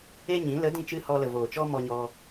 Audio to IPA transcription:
e˦ ɲ ĩ˨˦ l ə˨˦ d ĩ˧ t͡ʃ ɨ˧ h ɔ˧ l ə˨ v oː˨ t͡ʃ ɔ˦ m ɔ˧ ɲ ɔ˧

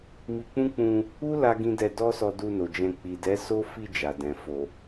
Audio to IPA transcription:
m i˧ k͡p ũ˦ k͡p ũ˧ | u˦ l a˦ ɡ ĩ˦ d ɛ˧ d ɔ˦ s ɔ˧ d u˧ n o˨ d͡ʒ ɛ̃˧ k͡p i˨ d ɛ˨˦ s o˦ f i˧ d͡ʒ a˨ d ɛ̃˨ f o˨

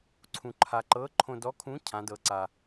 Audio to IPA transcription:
ǀʰ ũ˧ ǃʰ a˧ ǃ ɤ˧˥ ǃʰ õ˧ d ɔ˧˥ kʰ ũ˧˥ cʰ ã˧˥ d ɤ˧˥ ǀ a˧

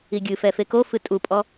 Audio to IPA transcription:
i ɡʲ ɨ f ɛ f e k o f ɨ tʼ u pʼ ɔ

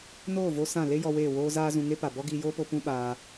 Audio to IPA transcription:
n oː˦˨ v o˧ s ã˦˨ l e˦ j ɔ˧ w eː˦˨ w oː˦ z aː˦ z ũ˧ ŋ e˦ p a˨ b ɔ˦ ɡ iː˧ j oː˦ p o˧ p ũ˦ ɓ aː˧

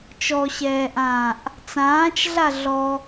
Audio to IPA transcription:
t͡ʃ ɔ ɕ ɛː ʔ ãː ʔ | t͡s ãː t͡ʃ ɮ a ɮ ɔ

